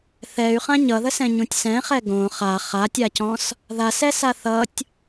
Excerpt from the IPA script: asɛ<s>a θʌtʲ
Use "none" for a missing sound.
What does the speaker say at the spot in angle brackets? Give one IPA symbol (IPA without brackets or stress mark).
s